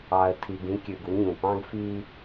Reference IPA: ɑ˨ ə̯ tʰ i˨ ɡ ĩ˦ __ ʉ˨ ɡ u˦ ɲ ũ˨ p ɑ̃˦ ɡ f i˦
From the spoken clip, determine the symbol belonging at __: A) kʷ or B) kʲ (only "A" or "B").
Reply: B